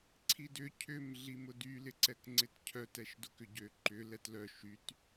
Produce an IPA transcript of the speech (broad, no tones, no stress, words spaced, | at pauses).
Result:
ǀʰidʏ cʰʏm ɮimʊdy lɪǀɛkŋ͡ǀɪtcʰœ tɛʃdʊkʏɟø ǃʏ lɛtlœ ʃyt